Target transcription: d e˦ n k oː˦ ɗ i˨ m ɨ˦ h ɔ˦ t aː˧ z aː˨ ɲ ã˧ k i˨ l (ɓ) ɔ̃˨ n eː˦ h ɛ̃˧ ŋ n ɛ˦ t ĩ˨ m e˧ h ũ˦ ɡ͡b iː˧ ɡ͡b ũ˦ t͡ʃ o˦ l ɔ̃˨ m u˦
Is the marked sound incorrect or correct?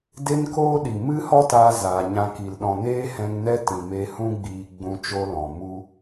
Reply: incorrect